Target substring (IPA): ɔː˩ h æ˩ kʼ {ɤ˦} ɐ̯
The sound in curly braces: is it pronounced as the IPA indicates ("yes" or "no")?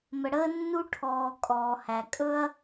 no